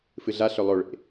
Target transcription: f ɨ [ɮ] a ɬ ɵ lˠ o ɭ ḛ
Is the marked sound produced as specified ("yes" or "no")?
yes